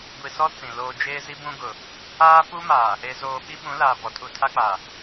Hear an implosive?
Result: yes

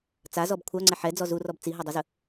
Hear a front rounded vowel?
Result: yes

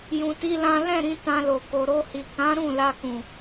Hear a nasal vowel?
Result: yes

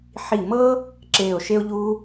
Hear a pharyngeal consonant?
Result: yes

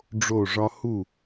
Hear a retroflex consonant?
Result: yes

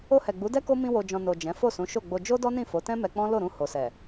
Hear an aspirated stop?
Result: no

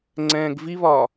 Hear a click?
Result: yes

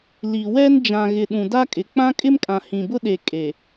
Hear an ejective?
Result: yes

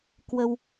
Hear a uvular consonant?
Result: no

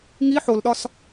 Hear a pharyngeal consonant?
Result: yes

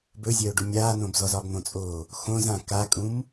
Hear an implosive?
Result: no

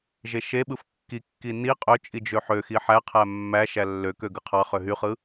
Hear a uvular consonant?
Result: yes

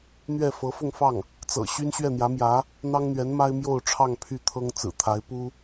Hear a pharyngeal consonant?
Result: no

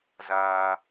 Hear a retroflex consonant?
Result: no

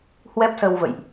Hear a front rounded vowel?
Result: no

